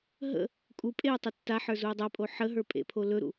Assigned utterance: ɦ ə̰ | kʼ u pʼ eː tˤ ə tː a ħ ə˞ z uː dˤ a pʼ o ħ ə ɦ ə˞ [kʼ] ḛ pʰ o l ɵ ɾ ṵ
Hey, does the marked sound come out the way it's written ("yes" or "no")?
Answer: no